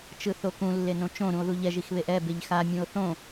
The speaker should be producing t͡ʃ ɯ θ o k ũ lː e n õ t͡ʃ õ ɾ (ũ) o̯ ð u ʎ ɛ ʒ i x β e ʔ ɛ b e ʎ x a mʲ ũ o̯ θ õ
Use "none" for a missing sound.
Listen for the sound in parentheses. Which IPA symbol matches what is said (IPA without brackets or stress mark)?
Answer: ũ